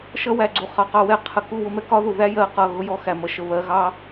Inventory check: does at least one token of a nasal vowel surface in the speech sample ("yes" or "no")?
no